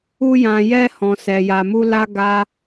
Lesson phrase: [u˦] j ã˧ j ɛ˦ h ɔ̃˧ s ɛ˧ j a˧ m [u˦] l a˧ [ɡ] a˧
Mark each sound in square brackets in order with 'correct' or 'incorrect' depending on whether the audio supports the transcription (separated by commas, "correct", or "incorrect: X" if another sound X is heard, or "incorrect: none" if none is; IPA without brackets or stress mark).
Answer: correct, correct, correct